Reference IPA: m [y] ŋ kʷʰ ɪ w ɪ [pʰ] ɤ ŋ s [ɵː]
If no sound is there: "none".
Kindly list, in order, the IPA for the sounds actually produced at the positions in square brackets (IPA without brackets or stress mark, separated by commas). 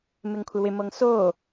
ɪ, m, oː